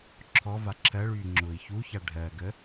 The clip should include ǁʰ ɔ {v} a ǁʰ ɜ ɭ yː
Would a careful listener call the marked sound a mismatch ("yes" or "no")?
no